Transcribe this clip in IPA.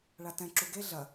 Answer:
ɭ a t ɛ̃ ǁ u ɡ e ɮ ɐ

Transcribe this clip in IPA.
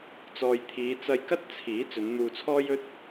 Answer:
t͡s ɔː˨ j t̪ʰ iː˨˧ t͡s ɐ˧ j k ɐ˥ t̚ t͡sʰ iː˨˥ t͡s ɵ˨˧ n n̪ uː˧ t͡sʰ ɔː˥ j ɵ˥ t̚

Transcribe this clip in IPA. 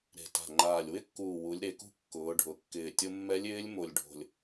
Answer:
ɾ e̤˨˩ t a̤˨˩ ŋ͡ǃ aː˨˩ lʲ w ɪ˧˥ kː uː˨˩ w u˩˧ lʲ ɾ e˩˧ k ṳ˧ kː ʊː˩˧ ɖʱ ʊ˩˧ kː ɪː˨˩ tʲ ʊ˧ mː ɛ˧˥ lʲ ɪː˧˥ lʲ m o˨˩ lʲ ɖʱ o̤˨˩ lʲ

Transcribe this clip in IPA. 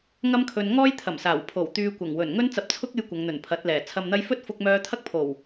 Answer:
ŋ ɐ˥ m kʰ ɵ˧ n ŋ ɔː˥ j t̪ʰ ɐ˨˩ m s aː˨˩ w pʰ o˨˩ w t̪ yː˧ kʷ ɐ˨˩ ŋ w ɵ˨˩ n ŋ ɵ˥ n t͡s ɐ˧ p̚ t͡sʰ ʊ˥ k̚ e˧ j kʷ ɐ˨˧ ŋ n̪ ɵ˨˩ n pʰ ɐ˨˥ t̚ l ɛː˨˩ t͡sʰ ɐ˨ m n̪ ɐ˧ j f ɵ˥ t̚ f ʊ˧ k̚ m œː˧ t̪ʰ ɐ˥ k̚ pʰ o˨˩ w

